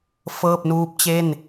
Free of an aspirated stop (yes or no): yes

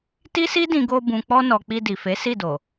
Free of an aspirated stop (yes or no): yes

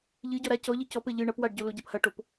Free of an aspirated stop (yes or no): yes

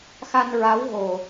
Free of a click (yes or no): yes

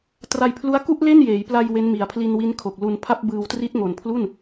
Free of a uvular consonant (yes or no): yes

